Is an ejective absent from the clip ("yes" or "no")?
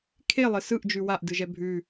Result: yes